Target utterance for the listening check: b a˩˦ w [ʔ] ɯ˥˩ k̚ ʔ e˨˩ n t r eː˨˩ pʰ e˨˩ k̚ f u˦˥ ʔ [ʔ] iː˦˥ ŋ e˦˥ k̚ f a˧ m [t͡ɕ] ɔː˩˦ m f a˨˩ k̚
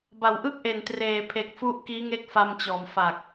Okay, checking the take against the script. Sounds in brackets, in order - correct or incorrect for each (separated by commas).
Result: correct, incorrect, correct